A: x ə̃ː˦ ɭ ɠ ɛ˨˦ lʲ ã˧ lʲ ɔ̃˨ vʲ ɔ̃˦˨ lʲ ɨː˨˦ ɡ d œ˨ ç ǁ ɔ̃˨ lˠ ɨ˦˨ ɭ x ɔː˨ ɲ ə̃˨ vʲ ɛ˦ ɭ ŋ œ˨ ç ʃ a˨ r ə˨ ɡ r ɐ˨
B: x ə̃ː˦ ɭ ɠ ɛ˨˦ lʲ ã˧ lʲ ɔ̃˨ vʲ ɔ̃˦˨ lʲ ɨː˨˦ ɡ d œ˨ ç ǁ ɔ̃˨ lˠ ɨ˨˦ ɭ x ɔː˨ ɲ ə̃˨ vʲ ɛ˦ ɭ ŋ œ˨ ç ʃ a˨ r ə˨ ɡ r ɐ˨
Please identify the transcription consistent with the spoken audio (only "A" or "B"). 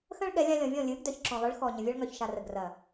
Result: B